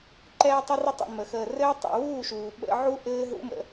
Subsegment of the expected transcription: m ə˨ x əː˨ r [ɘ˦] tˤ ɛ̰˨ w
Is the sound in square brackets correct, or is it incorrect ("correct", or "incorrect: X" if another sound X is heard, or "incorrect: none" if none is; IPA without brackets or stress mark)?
incorrect: ɘː˦